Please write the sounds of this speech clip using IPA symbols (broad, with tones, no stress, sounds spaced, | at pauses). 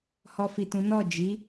h ɔ˧ f i˨ t ũ˨˦ n ɔ˦˨ d͡ʒ i˨˦